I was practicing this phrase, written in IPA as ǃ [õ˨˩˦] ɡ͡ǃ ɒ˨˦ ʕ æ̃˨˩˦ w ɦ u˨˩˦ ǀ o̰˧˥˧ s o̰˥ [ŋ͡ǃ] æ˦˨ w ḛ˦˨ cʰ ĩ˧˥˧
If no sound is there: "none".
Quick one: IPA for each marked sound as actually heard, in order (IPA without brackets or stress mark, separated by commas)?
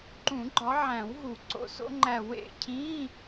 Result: ũ˨˩˦, ŋ͡ǃ